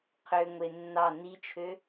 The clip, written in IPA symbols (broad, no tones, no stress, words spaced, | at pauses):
qʰøŋʷe nːɑ nit͡ʃʰø